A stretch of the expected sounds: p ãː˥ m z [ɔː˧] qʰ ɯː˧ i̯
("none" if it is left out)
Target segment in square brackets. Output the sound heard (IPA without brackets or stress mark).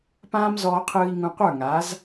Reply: ɔː˧